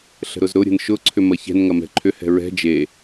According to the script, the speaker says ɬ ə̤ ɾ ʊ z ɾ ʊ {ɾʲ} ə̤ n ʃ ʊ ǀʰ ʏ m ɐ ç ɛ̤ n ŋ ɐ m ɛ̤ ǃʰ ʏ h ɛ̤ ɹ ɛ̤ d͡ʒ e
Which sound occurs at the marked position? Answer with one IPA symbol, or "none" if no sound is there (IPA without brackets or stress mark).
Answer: ɾʲ